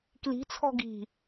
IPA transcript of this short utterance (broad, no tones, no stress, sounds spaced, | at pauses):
k l i̤ t͡sʰ ɔ̤ ɡ i̤